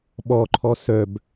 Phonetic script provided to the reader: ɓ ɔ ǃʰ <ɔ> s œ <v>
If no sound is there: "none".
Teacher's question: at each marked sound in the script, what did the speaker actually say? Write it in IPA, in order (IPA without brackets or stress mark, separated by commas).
ɔ, b